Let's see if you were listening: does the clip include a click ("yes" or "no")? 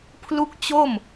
no